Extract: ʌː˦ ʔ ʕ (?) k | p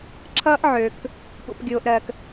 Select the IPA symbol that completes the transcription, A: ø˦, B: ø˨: B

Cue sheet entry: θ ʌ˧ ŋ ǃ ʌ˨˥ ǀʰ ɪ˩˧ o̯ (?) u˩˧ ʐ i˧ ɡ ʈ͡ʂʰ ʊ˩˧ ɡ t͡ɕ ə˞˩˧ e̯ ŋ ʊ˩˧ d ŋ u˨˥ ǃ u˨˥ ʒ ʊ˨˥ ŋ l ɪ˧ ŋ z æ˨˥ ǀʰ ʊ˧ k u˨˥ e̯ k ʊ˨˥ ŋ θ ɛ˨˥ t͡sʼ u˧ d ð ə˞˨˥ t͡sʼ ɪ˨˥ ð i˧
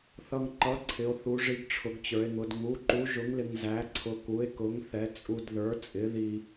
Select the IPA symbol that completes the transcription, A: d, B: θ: B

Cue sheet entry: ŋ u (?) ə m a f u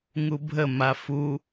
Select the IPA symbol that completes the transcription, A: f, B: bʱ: B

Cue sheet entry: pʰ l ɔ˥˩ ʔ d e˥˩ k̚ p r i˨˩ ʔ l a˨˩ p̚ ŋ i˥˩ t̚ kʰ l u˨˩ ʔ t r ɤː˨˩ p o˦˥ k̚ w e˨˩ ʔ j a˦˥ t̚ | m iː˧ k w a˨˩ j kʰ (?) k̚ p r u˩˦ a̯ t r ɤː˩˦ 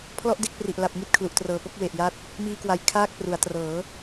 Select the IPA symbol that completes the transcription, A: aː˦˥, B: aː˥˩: B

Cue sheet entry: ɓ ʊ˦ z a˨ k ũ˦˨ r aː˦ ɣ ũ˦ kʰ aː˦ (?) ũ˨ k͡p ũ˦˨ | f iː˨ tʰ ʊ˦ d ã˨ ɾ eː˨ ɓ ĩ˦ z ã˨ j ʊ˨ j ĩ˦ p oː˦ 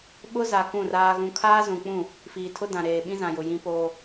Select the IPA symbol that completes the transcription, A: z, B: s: A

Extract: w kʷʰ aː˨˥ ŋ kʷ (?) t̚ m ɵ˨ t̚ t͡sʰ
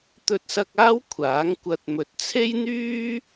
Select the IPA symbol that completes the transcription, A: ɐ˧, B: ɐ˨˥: A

